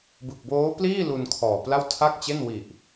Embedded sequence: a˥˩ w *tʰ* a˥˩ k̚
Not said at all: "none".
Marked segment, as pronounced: tʰ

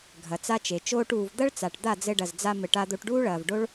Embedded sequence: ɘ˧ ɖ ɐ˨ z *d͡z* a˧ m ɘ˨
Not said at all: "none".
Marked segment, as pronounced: d͡z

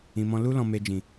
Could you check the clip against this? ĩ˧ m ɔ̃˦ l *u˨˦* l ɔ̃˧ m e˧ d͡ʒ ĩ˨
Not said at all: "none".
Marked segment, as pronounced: u˦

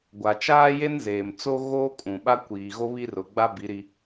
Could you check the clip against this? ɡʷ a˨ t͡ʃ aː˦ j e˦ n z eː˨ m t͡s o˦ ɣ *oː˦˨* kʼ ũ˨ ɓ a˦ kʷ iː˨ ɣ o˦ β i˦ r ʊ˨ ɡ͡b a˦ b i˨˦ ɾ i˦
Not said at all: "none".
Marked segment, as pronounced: oː˦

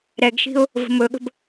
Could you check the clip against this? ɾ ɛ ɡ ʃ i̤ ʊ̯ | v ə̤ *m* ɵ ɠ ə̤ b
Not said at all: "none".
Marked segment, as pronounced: m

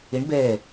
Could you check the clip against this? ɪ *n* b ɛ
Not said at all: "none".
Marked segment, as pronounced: ɳ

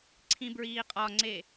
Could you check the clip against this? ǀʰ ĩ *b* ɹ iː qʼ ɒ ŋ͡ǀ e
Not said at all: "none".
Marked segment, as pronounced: b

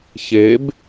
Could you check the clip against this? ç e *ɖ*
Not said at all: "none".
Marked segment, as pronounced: b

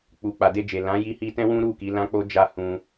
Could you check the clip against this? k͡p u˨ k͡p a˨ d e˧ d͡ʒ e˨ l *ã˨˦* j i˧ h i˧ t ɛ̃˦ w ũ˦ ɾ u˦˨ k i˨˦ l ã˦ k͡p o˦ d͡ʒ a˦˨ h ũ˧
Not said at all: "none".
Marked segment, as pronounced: ã˨˦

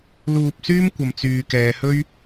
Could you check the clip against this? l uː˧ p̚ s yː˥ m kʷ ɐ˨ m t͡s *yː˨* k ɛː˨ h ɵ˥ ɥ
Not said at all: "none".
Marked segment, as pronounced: yː˨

